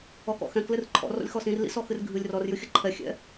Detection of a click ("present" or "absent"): present